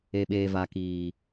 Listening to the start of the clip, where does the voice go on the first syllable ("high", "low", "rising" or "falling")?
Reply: high